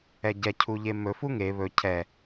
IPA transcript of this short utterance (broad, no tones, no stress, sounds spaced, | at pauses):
ɛ ɟ ɛ cʰ u ʎ e m ɵ f u ŋ e β ɵ cʰ ɛ